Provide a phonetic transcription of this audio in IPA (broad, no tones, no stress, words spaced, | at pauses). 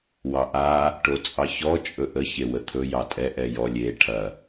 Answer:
wɑʔa | ʈot͡sʼɑçɔ t͡ʃʼɵʔə çewət̪ʰɵ jɑtʼɛ ʔɛjɔ lʲe ʈʰɐ